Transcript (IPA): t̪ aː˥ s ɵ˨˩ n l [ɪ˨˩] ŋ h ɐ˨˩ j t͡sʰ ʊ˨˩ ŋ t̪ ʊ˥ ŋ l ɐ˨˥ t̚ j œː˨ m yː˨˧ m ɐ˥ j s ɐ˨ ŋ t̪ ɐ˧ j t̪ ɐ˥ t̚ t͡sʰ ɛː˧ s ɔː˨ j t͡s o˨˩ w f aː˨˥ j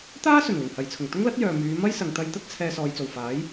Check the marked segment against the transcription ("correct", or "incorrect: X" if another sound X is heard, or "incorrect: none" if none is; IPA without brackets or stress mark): correct